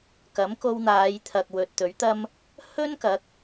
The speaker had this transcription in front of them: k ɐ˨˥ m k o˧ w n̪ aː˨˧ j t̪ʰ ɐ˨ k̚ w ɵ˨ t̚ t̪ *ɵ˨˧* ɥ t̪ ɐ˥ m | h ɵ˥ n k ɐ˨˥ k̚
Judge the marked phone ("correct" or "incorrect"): incorrect